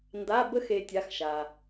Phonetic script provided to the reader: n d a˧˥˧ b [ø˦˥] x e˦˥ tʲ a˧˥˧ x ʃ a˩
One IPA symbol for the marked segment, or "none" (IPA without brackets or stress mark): ə˦˥